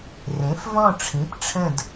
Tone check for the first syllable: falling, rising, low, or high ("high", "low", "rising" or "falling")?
rising